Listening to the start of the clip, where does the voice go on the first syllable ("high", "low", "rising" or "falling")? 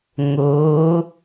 rising